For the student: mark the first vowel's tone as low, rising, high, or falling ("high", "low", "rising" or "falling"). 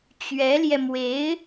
rising